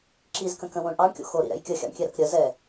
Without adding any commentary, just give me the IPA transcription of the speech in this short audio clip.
ǁ i z k ə̃ k ə̃ w õ ɳ ʔ ɑ ɳ kʲ o̰ x o ɾ ḭ ɾ ɛ̰ j kʲ ə xʲ ɑ̰ ɳ kʲ ɛ ɾ ɐ k ɾʲ ə z ɛ

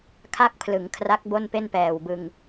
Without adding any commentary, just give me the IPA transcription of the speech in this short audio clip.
kʰ a˥˩ k̚ pʰ l ɯ˩˦ ŋ kʰ r a˦˥ k̚ b o˥˩ n p e˥˩ n p ɛː˨˩ w b ɯ˧ ŋ

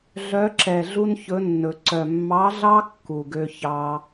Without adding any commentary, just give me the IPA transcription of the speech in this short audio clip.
ɮ œ˧˥ ǁ ɛ˨˩ ɮ u˥ n ç ɵ˧˥ nː ɵ˨˩˦ ǀ œ˨˩ mː ɑ˧˥ ɮ ɑ˥ kː u˨˩ ɡ ø˥ ç ɑ˥

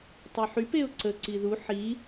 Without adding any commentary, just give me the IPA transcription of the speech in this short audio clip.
tˤ y ħ y p e ʊ̯ ǀ ə ǀ i ð u ħ i

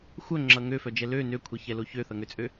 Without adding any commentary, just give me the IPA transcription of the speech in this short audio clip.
xʷ œ ŋ͡ǁ ʌ ŋ ø f œ d͡ʒ ɛ l ø n ø kʷʰ ɛ ç ɛ l o ç ø θ ʌ ŋ ø t͡sʼ ø

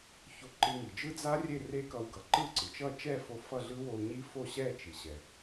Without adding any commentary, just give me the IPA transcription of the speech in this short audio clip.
ç o˧ ǃ ɯ˧ ŋ i˩ d͡ʒ ɯ˦˥ d͡z a˦˥ rʲ e˥˨ r e˦˥ k ʌ˧ w ɡ ʌ˩ ǃ ɯ˥˨ ǀ ɯ˩ t͡ʃ ʌ˥˨ t͡ʃ ɛ˥˨ f o˧ f ʌ˥˨ ɮ ɯ˦˥ w o˧ u̯ ɲ i˦˥ f o˥˨ ɕ ɛ˥˨ t͡ʃ i˩ ɕ ɛ˩

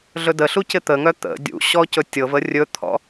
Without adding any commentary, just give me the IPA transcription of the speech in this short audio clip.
ɮ ɵ d ə ɬ u c ɪ t̪ ə ŋ œ t̪ ə̰ dʲ ṵ ɕ ɔ c ɵ tʲ ɤ v ə rʲ ɵ t̪ʰ ɔ̰

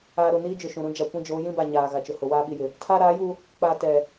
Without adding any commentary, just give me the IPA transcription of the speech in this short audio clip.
aː˨ ɾ ʊ˨ n iː˦ d͡ʒ ʊ˨ ʃ ũ˨ ɾ ũ˦ d͡ʒ a˨ kʷ ĩ˦ d͡ʒ oː˨˦ j ĩ˦ b a˨ ɲ aː˨ ɣ a˨ t͡ʃ ʊ˨ h ʊ˨ w aː˦ ɓ i˨ j ɪ˨ | tʰ aː˦ ɾ aː˨˦ j u˦ | k͡p aː˨ t ɛ˨

